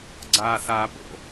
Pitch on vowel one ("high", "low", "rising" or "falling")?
high